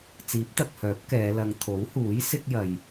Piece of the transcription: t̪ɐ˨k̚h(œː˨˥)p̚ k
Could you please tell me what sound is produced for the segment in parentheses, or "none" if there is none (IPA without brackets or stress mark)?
œː˨˥